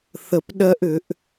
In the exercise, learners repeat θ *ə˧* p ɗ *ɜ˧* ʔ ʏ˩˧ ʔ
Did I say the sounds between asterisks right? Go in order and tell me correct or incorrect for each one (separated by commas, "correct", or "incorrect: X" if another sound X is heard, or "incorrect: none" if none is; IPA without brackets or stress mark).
correct, correct